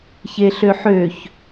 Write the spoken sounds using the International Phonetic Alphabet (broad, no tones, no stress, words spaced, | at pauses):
çeɬøħøç